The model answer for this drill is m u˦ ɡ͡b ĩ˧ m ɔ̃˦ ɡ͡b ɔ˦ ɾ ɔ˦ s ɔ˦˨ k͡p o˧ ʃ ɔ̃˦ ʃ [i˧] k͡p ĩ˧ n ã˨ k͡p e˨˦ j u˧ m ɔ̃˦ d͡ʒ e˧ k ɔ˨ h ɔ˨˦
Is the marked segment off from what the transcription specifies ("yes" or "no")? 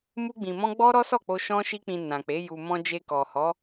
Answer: yes